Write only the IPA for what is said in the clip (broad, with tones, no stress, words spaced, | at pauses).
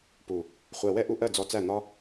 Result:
pu˨ | χʷɜ˨wɛ˦ ʔu˧ʔɜ˦˨ d͡zɔ˧t͡sæ˦˨n̪ɒ˦